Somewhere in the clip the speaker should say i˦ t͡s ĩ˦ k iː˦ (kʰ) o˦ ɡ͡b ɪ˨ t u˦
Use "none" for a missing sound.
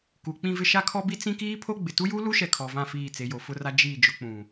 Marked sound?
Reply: pʰ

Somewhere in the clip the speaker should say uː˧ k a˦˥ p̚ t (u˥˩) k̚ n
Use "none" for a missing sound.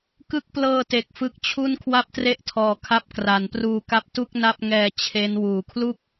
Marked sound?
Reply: u˥˩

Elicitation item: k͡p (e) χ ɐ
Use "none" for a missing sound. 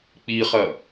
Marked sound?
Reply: i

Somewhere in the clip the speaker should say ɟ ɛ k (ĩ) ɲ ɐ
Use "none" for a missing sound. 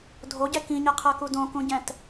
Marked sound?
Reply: ĩ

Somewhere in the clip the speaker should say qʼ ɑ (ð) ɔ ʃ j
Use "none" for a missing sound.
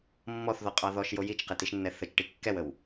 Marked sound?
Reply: ð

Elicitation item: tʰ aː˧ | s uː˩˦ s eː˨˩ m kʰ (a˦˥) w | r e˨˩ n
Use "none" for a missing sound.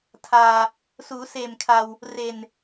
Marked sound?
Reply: a˧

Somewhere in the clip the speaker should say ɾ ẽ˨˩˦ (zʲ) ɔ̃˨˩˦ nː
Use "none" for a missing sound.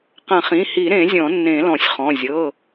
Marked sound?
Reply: zʲ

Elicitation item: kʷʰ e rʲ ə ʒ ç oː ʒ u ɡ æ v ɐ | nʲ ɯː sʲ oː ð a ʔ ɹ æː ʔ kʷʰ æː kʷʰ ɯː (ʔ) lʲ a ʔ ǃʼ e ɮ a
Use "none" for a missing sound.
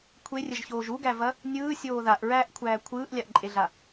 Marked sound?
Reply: ʔ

